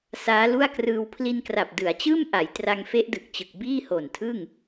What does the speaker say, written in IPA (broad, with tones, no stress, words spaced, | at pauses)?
saː˦˥lu˥˩a̯krɯː˧w pʰli˧nkra˨˩p̚ dɯ˩˦a̯t͡ɕɯː˥˩mʔa˩˦j tra˧ŋfe˦˥ʔdɯ˨˩k̚t͡ɕɯ˨˩k̚ biː˥˩ho˨˩ntʰɯ˥˩ŋ